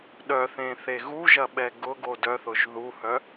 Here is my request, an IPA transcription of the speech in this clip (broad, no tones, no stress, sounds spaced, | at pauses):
ɗ œ θ ẽ θ e ɣ u ʒ ɐ ɓ ɛ ɡ ʊ ɡ o d œ θ ʊ ʒ ð u h œ